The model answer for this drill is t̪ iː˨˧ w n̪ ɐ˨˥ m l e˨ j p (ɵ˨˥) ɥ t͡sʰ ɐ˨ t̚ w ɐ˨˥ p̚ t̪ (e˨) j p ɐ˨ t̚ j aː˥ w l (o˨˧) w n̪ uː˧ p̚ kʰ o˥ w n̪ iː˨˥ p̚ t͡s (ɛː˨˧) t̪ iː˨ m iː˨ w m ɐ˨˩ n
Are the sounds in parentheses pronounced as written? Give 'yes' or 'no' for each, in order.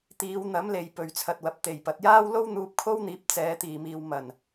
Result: no, no, no, yes

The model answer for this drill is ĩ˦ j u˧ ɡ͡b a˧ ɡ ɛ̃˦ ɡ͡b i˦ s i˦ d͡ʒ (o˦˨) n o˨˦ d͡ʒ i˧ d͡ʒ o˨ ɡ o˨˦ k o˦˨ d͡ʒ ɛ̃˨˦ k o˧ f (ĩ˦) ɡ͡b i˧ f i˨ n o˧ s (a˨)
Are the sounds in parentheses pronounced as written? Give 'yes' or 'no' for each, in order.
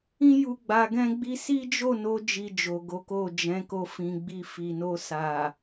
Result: yes, no, yes

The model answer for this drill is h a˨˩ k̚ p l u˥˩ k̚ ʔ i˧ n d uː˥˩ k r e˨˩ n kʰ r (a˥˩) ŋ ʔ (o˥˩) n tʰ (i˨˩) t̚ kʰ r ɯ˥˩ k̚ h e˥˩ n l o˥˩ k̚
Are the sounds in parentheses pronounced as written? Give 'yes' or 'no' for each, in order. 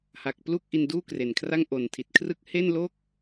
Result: yes, no, yes

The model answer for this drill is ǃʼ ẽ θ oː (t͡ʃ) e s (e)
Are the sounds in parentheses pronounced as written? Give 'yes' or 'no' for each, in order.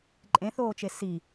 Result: yes, no

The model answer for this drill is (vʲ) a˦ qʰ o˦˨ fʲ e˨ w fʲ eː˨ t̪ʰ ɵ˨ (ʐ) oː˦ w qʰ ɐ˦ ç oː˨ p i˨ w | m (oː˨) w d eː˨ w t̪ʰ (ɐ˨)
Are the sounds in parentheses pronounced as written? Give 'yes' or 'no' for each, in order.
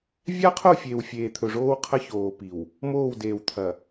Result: yes, yes, no, yes

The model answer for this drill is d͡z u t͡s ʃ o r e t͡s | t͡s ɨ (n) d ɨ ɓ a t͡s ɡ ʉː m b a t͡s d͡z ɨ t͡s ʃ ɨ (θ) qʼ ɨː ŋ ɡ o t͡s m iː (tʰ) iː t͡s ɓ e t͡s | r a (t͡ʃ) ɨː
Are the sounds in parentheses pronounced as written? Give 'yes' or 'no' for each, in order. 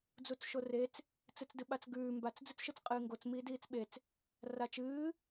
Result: no, no, no, yes

